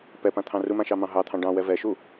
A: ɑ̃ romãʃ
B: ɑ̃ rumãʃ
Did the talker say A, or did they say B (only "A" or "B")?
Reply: B